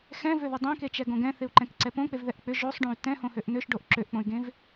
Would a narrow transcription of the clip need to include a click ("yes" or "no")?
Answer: yes